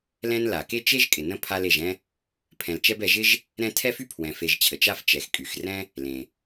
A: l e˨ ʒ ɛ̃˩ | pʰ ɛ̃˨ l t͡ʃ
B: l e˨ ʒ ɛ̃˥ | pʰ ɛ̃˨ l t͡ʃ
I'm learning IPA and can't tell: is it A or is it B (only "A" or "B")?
B